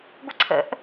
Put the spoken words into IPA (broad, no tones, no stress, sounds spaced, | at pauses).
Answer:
ɡʷ ə ǀʰ ə̰ ʔ